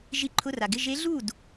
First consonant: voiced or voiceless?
voiced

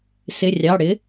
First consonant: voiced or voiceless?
voiceless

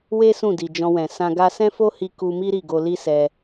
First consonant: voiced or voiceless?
voiced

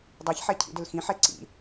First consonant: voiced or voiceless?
voiced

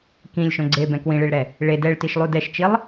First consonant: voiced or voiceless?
voiceless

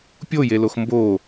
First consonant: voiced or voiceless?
voiceless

